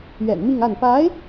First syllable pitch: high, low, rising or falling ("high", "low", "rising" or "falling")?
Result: low